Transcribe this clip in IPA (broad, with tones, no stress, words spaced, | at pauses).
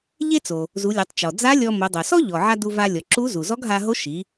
ʎe˥t͡so˩ | zu˩˧lʲo˩˧tˤt͡ʃɔ˩ d͡za˧˥ lʲɔ˧mo˩˧ dˤo˩sɔ˥ ʎɔ˩ʕa˧ du˧va˧ lʲɔ˩ǁu˧˥zu˩ zɔ˧˥ɡɦa˧ɦo˧˥ʃi˩˧